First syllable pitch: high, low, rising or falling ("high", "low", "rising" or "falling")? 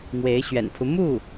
rising